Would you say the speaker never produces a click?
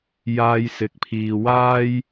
yes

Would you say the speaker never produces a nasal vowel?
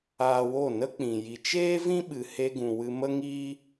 no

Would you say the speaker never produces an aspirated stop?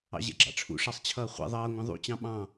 no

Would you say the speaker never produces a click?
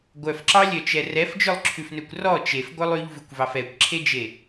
no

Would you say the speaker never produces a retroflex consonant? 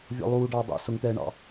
no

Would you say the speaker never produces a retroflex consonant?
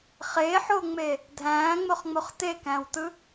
yes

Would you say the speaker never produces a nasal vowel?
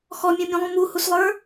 no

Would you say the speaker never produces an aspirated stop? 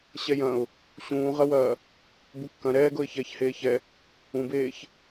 yes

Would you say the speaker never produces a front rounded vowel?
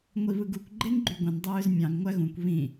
no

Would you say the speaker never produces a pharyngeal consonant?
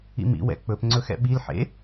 no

